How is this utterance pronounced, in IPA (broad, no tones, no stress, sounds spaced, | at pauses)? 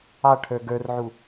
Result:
ɑ ʈʰ ə˞ ɡ ə˞ r ʕ u